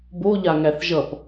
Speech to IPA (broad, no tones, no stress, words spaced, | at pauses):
boʎaŋæθ ʒʌp